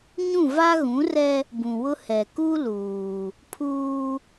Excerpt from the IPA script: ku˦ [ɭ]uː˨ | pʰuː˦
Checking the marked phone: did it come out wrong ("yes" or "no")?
yes